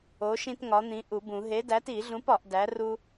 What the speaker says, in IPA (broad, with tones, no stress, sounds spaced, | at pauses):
o˨˥ ʃ ĩ˦ t ŋ ɒ˨˥ n̪ ĩ˨˥ ʔ u˨˩˦ b ũ˨˩˦ ɦ e˨˥ d æ˨˥ t i˨˩˦ ɮ ũ˨˥ p ɒ˨˩˦ ʔ d æ˨˥ r u˦